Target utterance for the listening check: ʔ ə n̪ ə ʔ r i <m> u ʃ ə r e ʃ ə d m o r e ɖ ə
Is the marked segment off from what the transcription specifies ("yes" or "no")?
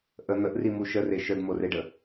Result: no